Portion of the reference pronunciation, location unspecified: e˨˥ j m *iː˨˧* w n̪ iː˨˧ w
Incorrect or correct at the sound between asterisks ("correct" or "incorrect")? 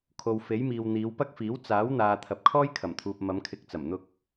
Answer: incorrect